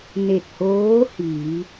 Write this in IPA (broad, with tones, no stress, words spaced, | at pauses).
ne˧˩t̚hoː˧˥hiː˩˧